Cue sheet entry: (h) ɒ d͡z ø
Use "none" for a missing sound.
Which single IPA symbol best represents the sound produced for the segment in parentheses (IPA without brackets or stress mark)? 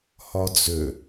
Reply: h